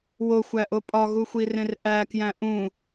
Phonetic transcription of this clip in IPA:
w o xʷ æ ʔ o pʼ ɒ ɣ u xʷ i r ẽ r ʔ æ k j æ̃ ʔ ũ

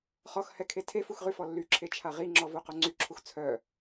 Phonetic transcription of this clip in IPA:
χ ɔ x h ɛ kʰ e tʰ e f u x ʁ y f ɔ lː y ǁʰ e t͡ʃʰ a ʁ i ŋ͡ǁ ɔ v o q o ŋ͡ǀ y ǁʰ u x t͡sʰ œ

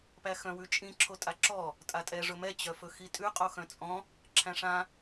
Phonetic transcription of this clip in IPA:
p æ x œ̃ w ʉ t͡ʃʼ ĩ ǁʰ o tʼ a ǁ ɔ | tʼ a tʼ ɛ ʐ ɵ m ɛ t͡ɕ œ f ɵ x i tʼ ʉ qʼ o x œ̃ t͡sʼ ɔ̃ | ǁʰ æ̃ ʂ ã

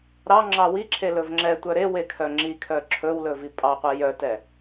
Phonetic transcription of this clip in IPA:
ɾ ɑ ŋ͡ǁ ɑ w i ǁʰ e l ɵ v ŋ͡ǁ ɛ tʷ œ ɾ e w e kʰ œ ŋ͡ǁ i kʰ œ ǁʰ ɵ w l ɵ v i pʼ ɑ qʷ ɛ j œ t ɛ

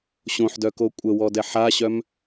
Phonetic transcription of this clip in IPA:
ɕ õ ħ d œ k o kʷʼ ə w ɔ d ɛ ħ a ɕ œ m

